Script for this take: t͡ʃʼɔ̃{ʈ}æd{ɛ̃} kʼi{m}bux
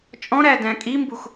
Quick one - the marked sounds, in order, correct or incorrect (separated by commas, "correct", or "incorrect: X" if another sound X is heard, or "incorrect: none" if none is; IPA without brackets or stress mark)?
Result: incorrect: ɾ, incorrect: æ̃, correct